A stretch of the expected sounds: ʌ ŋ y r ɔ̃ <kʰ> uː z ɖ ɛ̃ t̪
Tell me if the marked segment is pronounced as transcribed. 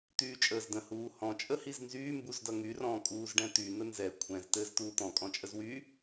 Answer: no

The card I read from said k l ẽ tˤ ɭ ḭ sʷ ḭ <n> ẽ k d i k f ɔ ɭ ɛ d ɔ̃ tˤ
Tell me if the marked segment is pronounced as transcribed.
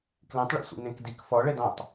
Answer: yes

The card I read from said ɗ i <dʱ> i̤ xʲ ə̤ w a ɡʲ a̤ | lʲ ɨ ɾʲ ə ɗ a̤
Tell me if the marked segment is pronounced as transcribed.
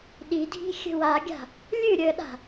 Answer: yes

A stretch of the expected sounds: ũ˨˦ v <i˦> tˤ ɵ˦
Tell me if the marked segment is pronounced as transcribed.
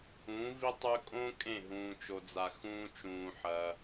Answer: yes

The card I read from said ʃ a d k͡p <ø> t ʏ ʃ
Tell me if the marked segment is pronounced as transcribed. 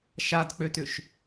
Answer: yes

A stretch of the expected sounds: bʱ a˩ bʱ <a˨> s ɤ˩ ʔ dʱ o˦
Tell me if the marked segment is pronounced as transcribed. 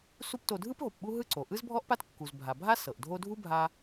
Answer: no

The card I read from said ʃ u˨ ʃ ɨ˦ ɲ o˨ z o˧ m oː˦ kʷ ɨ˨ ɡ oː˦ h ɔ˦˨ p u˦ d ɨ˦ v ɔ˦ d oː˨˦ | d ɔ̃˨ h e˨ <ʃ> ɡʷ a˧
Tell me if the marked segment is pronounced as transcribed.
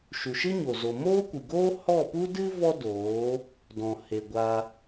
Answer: no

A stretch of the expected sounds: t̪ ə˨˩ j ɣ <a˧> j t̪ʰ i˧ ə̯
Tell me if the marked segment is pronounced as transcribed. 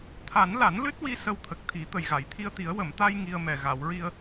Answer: no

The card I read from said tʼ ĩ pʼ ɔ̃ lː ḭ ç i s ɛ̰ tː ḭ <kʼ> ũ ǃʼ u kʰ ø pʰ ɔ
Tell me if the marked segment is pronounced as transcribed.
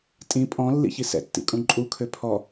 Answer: yes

